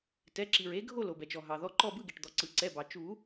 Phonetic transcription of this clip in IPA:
t ɛ˩˧˩ ǁ i˩ ɹ e˨˦ ɡʱ o˦˨ l o˩ b ɛ˩ t͡ʃ ɔ˩ ɦ ɑ˩ ð ɔ˨˦ ǃ ɔ˦˨ b ɯ˦˨ ɡ e˩ ʈ d̪ ɔ˩ ǀ ɯ˩ ǀ ɛ˩˧˩ b ɑ˩ t͡ʃ u˨˩˦

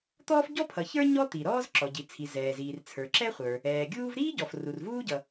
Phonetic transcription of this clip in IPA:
t̪ ɔː˥ f ɟ ɔ˥ pʰ ʌ˩ ç ə˞˥ ɲ ɔ˥ t̪ i˩ ɾ ɔː˥ z ǁ ɔ˩ ɟ i˩ t͡sʰ i˩ z ɛː˩ z iː˩ r t͡sʰ ə˞˩ ǁ ɛ˥ χʷ ə˞˩ | ɛː˩ ɡʲ uː˥ v ɾ iː˥ ɟ ɔ˩ f r u˩ r v uː˥ ɟ ʌ˩

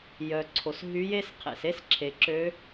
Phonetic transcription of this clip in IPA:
j œ˩ ǀʰ o˩ s ɦ y˧˥ j e˥ s qʰ ḛ˩ s e˥ s ǁʰ e˩ ǁ ø˧˥

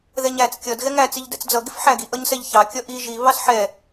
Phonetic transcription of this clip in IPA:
ð ɛ ɲ æ t͡s kʲ ʌ d ɣ ɛ ŋ æ t͡s i ʎ d ɛ̰ t͡s d͡z ʌ ɡ ɪ f ħ æ ɡ i ʔ ʌ ɲ s ɛ ʎ ç ɑ kʲ ʌ ʔ i ʒ i β ɑ s ħ ɛ

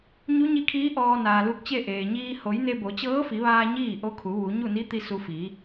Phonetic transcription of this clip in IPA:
ɲ u˧˥ ɲ i˧ kʰ iː˧˥ ʔ ɔː˧ n aː˩ l u˧ k̚ t͡ɕ e˥˨ ʔ eː˩ ɲ iː˧ h o˩˧ j n e˧ b o˩˧ t͡ɕ ɤː˧˥ f i˩˧ ʋ aː˧ ɲ iː˥˨ ʔ o˧˥ kʰ u˩˧ ʋ u˩˧ ɲ u˥˨ n i˧˥ t̪ i˧ s u˧ f iː˩˧

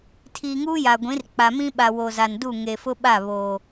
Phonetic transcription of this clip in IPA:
tʰ iː˨ ŋ uː˦ j a˨ ɡʷ ĩ˨˦ r k͡p a˨ m ĩ˦ ɓ a˨ w o˨ z a˨ n d u˦˨ ŋ e˨ f ʊ˦ ɓ a˦˨ β oː˨

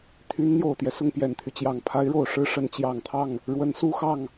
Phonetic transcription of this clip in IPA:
t̪ʰ y˧˥ n n̪ j o˨˩ ʊ̯ t̪ j ɛ˦ s ʊ˥˩ ŋ p j ɛ˨˩ n t̪ʰ y˦ t͡ɕ j ɑ˨˩ ŋ pʰ a˧˥ ɪ̯ ɻ o˨˩ ʊ̯ ʂ ɻ̩˥˩ ʂ ə˧˥ n t͡ɕ j ɑ˨˩ ŋ t̪ʰ ɑ˥˩ ŋ | ɻ w ə˧˥ n s u˥ x ɑ˥˩ ŋ

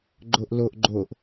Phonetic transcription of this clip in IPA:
ɡ͡ǃ o ʔ l o ʔ ɡ͡ǃ o ʔ

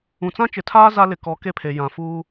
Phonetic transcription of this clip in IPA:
ũ˨ t͡s ã˦ t͡ʃ ɪ˨ tʰ aː˦ z a˦ l ɪ˨ k ɔ˨˦ k e˦ pʰ e˨ j ã˨ f uː˦

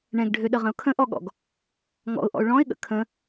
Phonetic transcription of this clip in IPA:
ɳ ɛ̃ ɡ ɖʱ ø ɗ ə ʁ ə̃ ʊ̯ kʰ ə̃ ʔ ɔ ɠ ɔ̰ ɡ | ŋ ɔ̰ ʊ̯ ʔ ɔ̰ ʊ̯ ɭ ɔ̃ ɪ̯ ɠ ə̰ kʰ ə̃

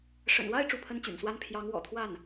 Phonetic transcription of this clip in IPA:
ʂ ə̰˨˩ n w a˥˧ ɪ̯ ʈ͡ʂ u˥˩ pʰ ə˥ n t͡ɕ y̰˨˩ n s w a˥ n pʰ j ɑ˧˥ ŋ w ɔ̰˨˩ t̪ʰ w a˥˩ n

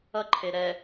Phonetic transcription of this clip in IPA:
ʌ ǃʰ e ɾ ɛ

